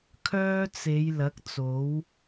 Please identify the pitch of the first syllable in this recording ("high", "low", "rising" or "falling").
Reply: high